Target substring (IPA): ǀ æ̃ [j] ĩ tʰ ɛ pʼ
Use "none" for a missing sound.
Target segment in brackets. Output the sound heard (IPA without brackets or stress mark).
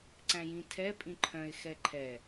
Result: j